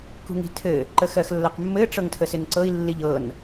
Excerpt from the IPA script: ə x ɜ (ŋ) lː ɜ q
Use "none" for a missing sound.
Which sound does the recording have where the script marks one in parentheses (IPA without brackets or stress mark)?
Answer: x